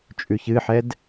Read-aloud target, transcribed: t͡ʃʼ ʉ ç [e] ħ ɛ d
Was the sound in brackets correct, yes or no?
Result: no